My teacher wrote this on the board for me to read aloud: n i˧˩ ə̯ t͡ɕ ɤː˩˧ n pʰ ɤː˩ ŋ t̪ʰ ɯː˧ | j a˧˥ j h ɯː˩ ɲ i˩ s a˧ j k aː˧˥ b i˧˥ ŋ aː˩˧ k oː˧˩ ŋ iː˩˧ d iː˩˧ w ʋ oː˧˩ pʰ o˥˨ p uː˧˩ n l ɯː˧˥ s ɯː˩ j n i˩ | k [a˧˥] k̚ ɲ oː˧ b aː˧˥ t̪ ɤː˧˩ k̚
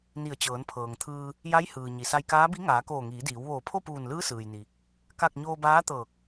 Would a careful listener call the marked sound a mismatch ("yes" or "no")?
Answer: yes